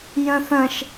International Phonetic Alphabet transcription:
j ə̃ θ ə̃ ʃ

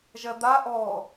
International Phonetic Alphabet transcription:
ʒ ɜ d̪ a ʔ ɔ

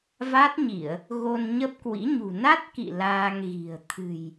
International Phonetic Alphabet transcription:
v a˦˥ t̚ ɲ i˧˩˨ ə̯ | ɣ o˧ n ɲ ə˦˥ p̚ k w ḭ˧˥ ɲ ṳ˨˩ n a˦˥ t̚ k ḭ˧˨ l aː˧ ŋ ɣ i̤˨˩ ə̯ t̪ʰ ɨ̤˨˩ j

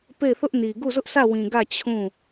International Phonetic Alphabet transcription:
p e˦˨ ɪ̯ θ ʊ˦ ʔ n i˨ ɡ u˦˨ z ʊ˦ ʔ s ä˦˨ w ĩ˨ ɡ ä˦˨ t͡ɕʰ ũ˦˨

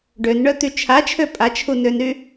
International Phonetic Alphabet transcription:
ɖ ø n ɳ œ t̪ y t͡ʃʰ a t͡ʃʰ ø pʼ a t͡ʃʰ u n ø n ɾ y

